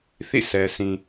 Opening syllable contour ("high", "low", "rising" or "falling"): falling